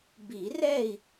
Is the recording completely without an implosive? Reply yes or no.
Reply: yes